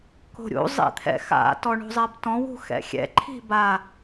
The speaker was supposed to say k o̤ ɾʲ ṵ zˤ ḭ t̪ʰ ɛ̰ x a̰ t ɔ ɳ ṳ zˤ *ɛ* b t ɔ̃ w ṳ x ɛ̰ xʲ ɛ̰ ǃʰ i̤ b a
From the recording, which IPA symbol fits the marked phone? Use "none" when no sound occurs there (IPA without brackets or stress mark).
ɛ